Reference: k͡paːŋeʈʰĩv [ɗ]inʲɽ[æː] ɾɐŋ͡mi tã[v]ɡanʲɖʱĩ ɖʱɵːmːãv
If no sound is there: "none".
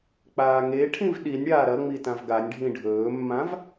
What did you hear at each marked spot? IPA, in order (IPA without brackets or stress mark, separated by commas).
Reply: ɗ, aː, v